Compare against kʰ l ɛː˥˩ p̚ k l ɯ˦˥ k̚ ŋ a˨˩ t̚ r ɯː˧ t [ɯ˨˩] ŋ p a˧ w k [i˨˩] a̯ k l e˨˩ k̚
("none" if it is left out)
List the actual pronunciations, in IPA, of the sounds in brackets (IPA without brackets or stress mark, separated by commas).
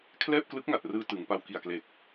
ɯ˩˦, i˨˩